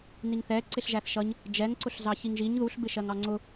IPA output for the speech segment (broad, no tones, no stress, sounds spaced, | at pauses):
n i ŋ θ ɛ ǀ ɪ ɬ ʒ æ θ ʃ ʌ ɲ | d͡ʒ ɛ ŋ ǀ ʊ ɬ z ɑ ç i ŋ ʒ i ɲ ð u ɬ b ɪ ʃ ɜ ŋ ɑ ŋ͡ǀ ʊ